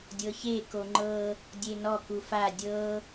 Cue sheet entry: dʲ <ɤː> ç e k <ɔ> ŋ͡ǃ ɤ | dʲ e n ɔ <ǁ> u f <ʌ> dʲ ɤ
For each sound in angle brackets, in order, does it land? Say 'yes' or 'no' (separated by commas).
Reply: no, no, no, no